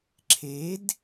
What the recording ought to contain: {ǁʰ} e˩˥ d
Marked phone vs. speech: correct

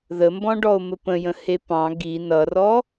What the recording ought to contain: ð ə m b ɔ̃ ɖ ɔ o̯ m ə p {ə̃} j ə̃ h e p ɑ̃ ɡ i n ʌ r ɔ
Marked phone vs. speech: correct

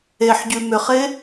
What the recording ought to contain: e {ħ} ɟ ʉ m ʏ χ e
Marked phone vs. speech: correct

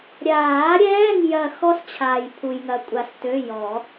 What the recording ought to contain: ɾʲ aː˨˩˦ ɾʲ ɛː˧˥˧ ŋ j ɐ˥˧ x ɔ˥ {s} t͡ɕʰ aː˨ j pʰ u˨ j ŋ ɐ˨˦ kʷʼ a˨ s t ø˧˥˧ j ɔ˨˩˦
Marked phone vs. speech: correct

